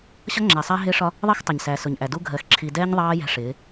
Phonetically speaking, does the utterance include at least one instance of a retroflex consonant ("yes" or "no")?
yes